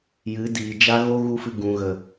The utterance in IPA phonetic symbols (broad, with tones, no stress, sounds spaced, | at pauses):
j ɨ˨˦ d iː˨ d͡ʒ a˦ ɣ o˦ ɣ u˦ f ɨ˧ ɡ ũ˨ ɣ ə˨